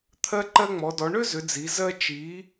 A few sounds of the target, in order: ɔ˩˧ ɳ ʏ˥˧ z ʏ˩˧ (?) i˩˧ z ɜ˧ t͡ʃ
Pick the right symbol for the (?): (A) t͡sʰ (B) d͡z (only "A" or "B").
B